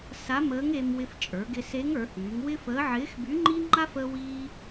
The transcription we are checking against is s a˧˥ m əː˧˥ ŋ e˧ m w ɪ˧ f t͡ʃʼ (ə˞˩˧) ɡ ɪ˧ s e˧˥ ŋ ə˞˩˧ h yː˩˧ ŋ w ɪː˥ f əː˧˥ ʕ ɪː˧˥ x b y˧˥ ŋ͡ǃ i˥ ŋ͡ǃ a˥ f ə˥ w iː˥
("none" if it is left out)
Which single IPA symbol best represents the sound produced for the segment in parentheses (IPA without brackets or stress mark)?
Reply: ə˞˩˧